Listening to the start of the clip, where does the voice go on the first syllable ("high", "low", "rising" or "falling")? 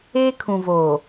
high